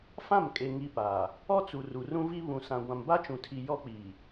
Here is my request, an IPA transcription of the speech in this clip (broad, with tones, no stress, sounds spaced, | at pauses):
f ã˦˨ m kʼ e˨ ŋ i˦ p aː˨ | ɔ˦ t͡s u˨ r u˨ r ũ˦ v i˦ β ũ˨ s ã˨ ɡʷ ã˨ m b a˦ t͡ʃ ũ˨ tʰ i˨ j ɔ˦ k͡p iː˨